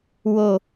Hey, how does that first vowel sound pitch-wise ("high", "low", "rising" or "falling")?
low